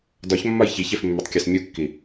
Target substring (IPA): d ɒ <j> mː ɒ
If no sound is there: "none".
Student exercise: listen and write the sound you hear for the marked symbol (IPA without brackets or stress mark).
ç